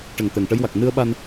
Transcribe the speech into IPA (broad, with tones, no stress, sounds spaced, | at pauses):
ʈ ə˨˩ ŋ t̪ ɛ˨˩ ŋ ʈ ə˧˥ j w a˨˩ k̚ n ɨ˧ ə̯ ɓ a˧ n